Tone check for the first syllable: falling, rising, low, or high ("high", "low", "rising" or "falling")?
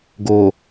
low